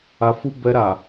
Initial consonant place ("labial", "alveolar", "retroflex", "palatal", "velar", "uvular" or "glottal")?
labial